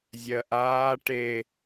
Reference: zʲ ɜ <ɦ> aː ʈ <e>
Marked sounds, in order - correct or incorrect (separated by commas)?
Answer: incorrect, correct